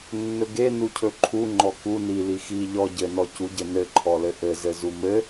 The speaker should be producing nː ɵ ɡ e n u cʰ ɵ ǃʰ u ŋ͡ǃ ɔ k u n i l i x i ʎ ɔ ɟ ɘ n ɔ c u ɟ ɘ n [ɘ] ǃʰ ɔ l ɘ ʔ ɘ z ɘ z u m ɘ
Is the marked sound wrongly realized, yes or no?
no